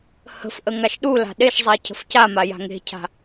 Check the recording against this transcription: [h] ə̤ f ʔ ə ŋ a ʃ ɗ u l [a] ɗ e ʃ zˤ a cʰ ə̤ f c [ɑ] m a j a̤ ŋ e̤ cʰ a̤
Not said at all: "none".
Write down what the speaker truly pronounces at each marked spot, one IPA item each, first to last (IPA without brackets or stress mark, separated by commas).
h, a̤, a